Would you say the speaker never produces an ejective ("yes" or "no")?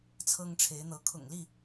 yes